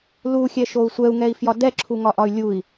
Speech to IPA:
l u xʲ ɛ ʃ o u̯ sʷ ɛ u̯ ŋ ɛ i̯ f j ɒ d ɛ ǁʰ u ŋ ɒ ʔ ɒ y̯ lʲ u i̯

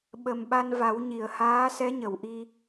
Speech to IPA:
ɓ ə˨˩ m ɓ a˧ n v a˨˩˦ w ɲ i˨˩˨ ə̯ h aː˧˥ s ɛ˧˥ ɲ ə˨˩˨ w ʔ i˧

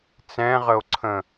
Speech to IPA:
t͡s ɛ̃ ʁ ə o̯ ǀʰ ə̃

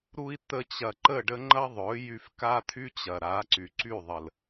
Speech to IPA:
ɾ u˧ i̯ t̪ ə˧ t͡ɕ ɐ˨ ǃ ə˦˨ ɖ ə˦ ŋ͡ǃ ɐ˦ ðˤ ɵ˨˦ j y˧ f k a˦ t̪ʰ y˦ t͡ɕ ɐ˨ ɾ a˨˦ ǀ y˨ ǀ y˦˨ ðˤ ə˨ l

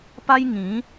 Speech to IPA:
p a˦ j ŋ ĩ˨˦

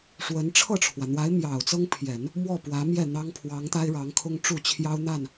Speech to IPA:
ʂ w ə˧˥ n ʈ͡ʂʰ ɤ˥˩ ʈ͡ʂʰ w ä˩ n̪ w a˧˥ ɪ̯ m j ɑ˨˩ ʊ̯ t͡s ɤ˥ ŋ pʰ j ɛ˨˩˦ n | m w ɔ˥˩ p w ä˧˥ m j ɛ˥˩ n̪ ɑ˥ ŋ pʰ w ɑ˧˥ ŋ t̪ a˥ ɪ̯ ɻ ɑ˧˥ ŋ kʰ ʊ˥ ŋ ʈ͡ʂ u˥˩ t͡ɕʰ j ɑ˥ ʊ̯ n̪ a˥˩ n

